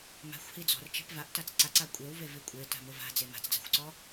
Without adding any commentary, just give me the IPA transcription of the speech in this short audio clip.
m a̤ xʷ h i d͡z ɔ̤ r t͡ʃ e̤ p v a ʔ t a t͡s ǀ a ǀ a kʷʼ e w v e v i kʷʼ e t a̤ m ʊ v a̤ d͡z e m a̤ t͡s d͡z a̤ xʷ ǀ ɔ

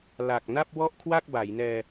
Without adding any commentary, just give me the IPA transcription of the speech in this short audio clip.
l a˨˩ k̚ n a˥˩ p̚ w ɔ˥˩ ʔ kʰ w a˥˩ k̚ b a˩˦ j n ɛː˧

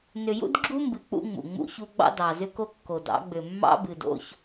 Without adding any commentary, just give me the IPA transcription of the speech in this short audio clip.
n ʏ˨ j ṵ˦ d ɡ͡ǁ u˦ m b ɨ˨ k͡p ṵ˦ ŋ͡m ṵ˨ ŋ͡m ṵ˦ ç u˦ ɡ͡b ɑ̰˦ d ɑ˨ z ʏ˦ k o˦ kː o˨ d ɑ̰˨˦ ɡ͡b ʏ˨ mː ɑ̰˦ b ɨ˨ d o̰˦ ç

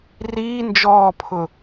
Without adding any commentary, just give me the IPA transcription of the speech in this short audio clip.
r iː n d͡ʒ ɔː pʰ ʊ

